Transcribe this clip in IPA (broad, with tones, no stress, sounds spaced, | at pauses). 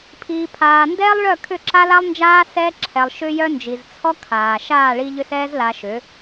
pʰ iː˨ pʰ aː˨ n d ɛː˦ lˠ ɭ œ˦˨ kʰ ʏ˦˨ ǁ a˦ l a˦ lˠ n d͡ʒ aː˦ s ɛː˧ ǁʰ ɛ˨ lˠ ʃ ʏ˧ j œ˦ n d͡ʒ i˨ z t͡sʰ ɔ˦ kʰ aː˨ ʃ aː˦˨ ɭ i˧ ʎ ʏ˦ s ɛː˦ z l a˧ ʃ ʏ˨˦